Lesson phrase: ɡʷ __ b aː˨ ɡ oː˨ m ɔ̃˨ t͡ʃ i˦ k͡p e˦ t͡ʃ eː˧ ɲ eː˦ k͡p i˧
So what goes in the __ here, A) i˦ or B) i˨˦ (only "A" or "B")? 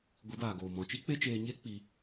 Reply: B